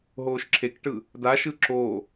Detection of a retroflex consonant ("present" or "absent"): present